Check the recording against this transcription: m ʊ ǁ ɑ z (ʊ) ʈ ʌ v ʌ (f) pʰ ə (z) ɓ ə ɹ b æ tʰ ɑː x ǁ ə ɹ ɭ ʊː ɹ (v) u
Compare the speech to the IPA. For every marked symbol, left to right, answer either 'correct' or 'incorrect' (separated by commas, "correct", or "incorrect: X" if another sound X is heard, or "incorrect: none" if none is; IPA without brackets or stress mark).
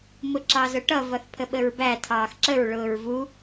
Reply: correct, incorrect: θ, incorrect: none, correct